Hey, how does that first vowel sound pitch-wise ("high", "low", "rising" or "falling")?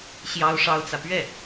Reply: high